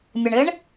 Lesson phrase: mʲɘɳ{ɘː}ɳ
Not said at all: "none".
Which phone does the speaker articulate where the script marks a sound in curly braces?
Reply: ɘː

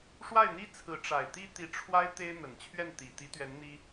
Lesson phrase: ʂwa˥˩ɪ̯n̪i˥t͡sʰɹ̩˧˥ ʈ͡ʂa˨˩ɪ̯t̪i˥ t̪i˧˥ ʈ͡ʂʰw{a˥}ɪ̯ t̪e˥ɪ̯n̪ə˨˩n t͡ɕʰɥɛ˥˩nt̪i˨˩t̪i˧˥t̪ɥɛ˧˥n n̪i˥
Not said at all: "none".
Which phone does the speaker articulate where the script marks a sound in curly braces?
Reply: a˥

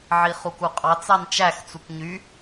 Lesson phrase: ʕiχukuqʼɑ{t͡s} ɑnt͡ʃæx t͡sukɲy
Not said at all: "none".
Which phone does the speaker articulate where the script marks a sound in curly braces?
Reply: t͡s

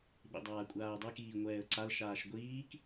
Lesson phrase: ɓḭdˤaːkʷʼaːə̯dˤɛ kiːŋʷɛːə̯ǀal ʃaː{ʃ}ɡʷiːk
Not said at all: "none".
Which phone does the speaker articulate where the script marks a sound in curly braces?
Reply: ʃ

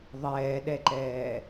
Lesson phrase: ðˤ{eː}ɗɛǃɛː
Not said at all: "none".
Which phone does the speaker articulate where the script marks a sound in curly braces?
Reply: ɛː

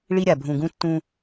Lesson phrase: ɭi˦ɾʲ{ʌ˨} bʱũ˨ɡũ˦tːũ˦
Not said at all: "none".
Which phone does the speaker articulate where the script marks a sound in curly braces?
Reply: a˨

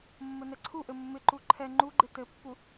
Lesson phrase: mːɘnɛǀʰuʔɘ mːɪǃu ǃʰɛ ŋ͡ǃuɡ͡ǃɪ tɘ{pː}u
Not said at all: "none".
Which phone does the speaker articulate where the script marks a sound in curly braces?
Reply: pː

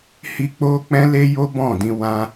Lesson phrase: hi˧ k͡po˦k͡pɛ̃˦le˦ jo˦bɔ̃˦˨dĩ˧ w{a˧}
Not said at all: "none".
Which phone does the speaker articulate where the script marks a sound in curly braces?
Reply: ã˧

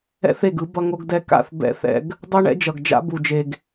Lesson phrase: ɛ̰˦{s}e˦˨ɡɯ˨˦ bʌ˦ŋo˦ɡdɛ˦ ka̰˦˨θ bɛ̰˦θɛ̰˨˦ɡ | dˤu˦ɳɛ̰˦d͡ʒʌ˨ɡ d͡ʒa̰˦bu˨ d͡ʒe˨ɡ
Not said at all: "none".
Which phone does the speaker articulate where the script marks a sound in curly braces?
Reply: θ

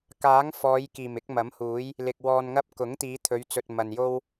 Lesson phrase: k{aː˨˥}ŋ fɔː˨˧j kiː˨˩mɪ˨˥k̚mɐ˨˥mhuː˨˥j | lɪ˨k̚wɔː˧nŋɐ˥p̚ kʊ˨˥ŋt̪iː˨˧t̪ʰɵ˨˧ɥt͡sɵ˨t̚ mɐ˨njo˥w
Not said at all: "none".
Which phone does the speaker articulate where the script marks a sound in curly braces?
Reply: aː˨˥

